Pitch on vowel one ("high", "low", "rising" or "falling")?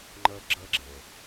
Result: low